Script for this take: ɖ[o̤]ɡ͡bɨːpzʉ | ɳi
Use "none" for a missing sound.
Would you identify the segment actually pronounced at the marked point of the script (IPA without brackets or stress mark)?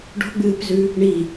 o̤